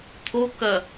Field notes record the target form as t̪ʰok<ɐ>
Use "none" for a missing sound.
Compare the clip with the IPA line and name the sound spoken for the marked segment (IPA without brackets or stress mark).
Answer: ɐ